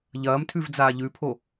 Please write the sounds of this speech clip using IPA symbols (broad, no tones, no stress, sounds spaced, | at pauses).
ʎ ɐː m tʰ ʉ v d͡z aː ʎ ʉ pʰ o